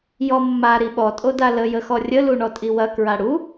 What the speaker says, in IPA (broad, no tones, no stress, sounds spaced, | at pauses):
j ɔ mː a ɾ i ɓ ɔ tʼ o d a l ə j ə x ɔ rʲ ə l u ɳ ɔ tʼ i w ɐ k ɹ a ɽ u